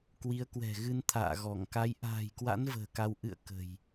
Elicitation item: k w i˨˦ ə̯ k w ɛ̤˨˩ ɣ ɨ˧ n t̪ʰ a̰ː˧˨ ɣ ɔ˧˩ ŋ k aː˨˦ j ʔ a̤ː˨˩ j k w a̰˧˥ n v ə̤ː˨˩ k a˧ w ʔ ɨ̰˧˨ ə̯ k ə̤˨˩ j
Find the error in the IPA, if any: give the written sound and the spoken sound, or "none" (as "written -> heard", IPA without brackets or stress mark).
aː˨˦ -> a˨˦